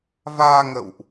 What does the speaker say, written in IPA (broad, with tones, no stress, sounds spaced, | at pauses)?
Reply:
v aː˧ ŋ ə̰˧˨ w ʔ